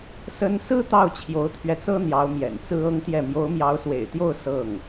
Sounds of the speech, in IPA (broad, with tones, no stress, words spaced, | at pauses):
sə˥n sɹ̩˥ t̪ɑ˥˩ʊ̯t͡ɕʰjo˧˥ʊ̯t̪ʰɥɛ˧t͡sɤ˥ n̪jɑ˧˥ʊ̯mjɛ̰˨˩nt͡sɹ̩˥ ɤ˥ŋt̪jɛ˥˩ mjo˧˥ʊ̯mjɑ˧˥ʊ̯swḛ˨˩ɪ̯t̪jo˥˧ʊ̯ sɤ˥˩ŋ